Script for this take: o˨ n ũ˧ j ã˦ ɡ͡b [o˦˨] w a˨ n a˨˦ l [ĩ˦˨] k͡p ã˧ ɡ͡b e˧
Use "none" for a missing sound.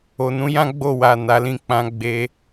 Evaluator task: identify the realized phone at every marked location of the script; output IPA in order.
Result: o˦˨, ĩ˦˨

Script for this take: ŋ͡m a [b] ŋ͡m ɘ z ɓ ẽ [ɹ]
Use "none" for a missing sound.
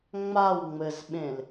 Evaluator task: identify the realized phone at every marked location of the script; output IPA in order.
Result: w, l

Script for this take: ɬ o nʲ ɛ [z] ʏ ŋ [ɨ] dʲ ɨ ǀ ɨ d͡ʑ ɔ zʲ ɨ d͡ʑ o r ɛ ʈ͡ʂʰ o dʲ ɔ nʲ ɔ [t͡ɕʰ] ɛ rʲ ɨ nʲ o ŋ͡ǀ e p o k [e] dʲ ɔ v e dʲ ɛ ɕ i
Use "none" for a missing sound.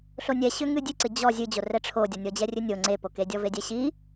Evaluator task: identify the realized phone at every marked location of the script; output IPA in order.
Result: ɕ, ɨ, d͡ʑ, e

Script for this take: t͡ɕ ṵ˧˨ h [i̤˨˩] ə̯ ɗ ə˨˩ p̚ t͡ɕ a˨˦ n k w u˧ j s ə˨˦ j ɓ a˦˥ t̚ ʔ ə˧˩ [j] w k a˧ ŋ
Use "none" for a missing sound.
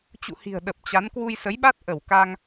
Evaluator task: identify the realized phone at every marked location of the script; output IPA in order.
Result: i̤˨˩, none

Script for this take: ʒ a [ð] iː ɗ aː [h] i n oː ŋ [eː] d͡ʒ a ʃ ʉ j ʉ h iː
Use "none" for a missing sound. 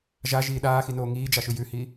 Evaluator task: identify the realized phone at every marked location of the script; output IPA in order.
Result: ʒ, x, iː

